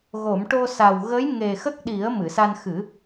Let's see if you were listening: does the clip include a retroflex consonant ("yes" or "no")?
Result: yes